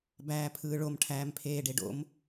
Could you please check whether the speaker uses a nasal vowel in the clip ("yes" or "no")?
no